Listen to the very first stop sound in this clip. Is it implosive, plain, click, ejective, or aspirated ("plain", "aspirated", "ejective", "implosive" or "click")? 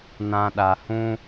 implosive